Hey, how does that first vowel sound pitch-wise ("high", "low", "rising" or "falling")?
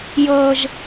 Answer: high